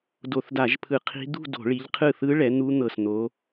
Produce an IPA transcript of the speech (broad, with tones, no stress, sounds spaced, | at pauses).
d o˧˩˧ θ d a˧˩˧ ʒ pʰ ɯ˧˩˧ qʰ i̤˦˥ d̪ ṳ˥˧ d o̤˧˩˧ ɭ i˨˦ ʎ qʰ ɯ˥˩ θ ɯ˦˥ ɭ ɛ˨˦ n̪ u˦˥ n̪ ɤ˧˩ s n̪ o˨˦